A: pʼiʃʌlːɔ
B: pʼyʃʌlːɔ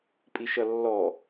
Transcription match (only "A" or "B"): A